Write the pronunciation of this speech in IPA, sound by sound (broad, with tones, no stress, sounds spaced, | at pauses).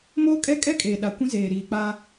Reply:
m oː˦ kʼ ɛ˦ kʼ ɛ˦ kʼ eː˨ ɗ a˨ kʷ ĩ˦ z eː˨ ɾ iː˨ k͡p a˦